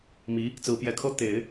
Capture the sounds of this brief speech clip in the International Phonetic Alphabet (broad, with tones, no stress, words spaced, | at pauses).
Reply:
mi˧˥ | t͡sɹ̩˧˥pjɛ˧˥kʰɤ˥ t̪e˨˩˦ɪ̯